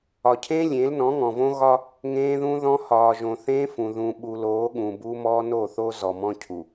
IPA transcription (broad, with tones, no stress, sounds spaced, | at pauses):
ɒ˨ cʰ ẽ˦ lʲ ẽ˨˦ l n ɔ̃˨˦ ŋ ɔ̃˨ v õ˦ ɣ ɒ˦ | ŋ ẽː˦ ð ũ˦ ð ɔ̃˦ h ɒː˨ ʒ õ˨ θ ẽː˦ f ũ˨ ð ũ˨ ɓ u˨ l oː˨˦ ɠ ũ˨ b u˦ m ɔː˦ n o˦˨ θ o˦ z ɔ˨ m ɔ̃˦ cʰ u˨